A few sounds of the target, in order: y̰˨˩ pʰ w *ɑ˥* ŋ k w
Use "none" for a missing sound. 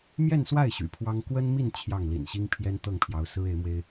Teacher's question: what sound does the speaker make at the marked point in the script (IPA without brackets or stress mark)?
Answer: ɑ˥